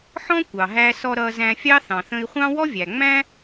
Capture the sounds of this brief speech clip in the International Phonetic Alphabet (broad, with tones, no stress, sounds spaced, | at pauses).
ħ ɔ̃˥ kʷ ɑ˩ ɦ æ˧ s ɔ˧ ɾ ʌ˧ z æ̃˧ fʲ ɑ˥ θ ɑ̃˩ θ ə̃˧ i̯ χʷ ɑ̃˥ w ɔ˥ vʲ æ˩ ŋ͡m æ̃˥